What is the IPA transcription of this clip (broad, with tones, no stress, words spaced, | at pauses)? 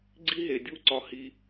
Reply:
ɡ͡ǀi˥ɦe˧dʲu˥ ǀɒ˥hi˥